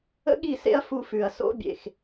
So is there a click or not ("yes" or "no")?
no